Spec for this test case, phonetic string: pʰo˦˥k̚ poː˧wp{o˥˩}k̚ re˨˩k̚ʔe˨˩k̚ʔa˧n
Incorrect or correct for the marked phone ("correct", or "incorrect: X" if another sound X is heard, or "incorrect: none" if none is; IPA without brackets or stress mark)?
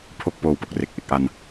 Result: incorrect: o˨˩